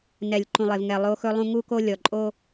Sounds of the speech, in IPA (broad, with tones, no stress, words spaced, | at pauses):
nɛ˨lʲǃũ˨lˠe˨vŋɛ˨ lˠo˦xɵ˦lˠũ˦ ŋu˦ko˦ lʲɔ˨ǃʼo˦